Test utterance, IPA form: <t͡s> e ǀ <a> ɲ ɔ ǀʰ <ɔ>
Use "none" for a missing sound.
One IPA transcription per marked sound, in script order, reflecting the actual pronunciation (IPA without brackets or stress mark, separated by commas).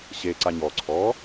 ɕ, a, ɔ